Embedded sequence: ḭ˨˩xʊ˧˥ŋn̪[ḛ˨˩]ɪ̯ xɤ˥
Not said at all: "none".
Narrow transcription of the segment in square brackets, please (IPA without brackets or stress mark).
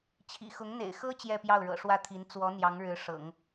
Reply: ḛ˨˩